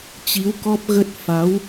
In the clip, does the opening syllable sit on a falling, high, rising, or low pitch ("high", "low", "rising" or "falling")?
rising